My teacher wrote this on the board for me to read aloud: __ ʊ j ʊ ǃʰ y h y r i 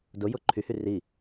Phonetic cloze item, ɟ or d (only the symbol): d